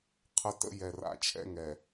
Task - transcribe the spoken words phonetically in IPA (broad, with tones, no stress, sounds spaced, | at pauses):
qʰ ə˦ t ə̰˦ j ɛ˨ r a̰˦ t͡ʃʰ ɛ̰˦ ŋ ɛ˨